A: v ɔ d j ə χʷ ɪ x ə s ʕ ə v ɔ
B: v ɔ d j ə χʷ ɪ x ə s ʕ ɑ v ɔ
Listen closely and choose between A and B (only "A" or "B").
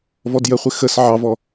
B